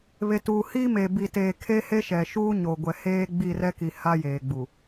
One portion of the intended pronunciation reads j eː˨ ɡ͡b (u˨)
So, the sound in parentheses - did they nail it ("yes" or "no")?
yes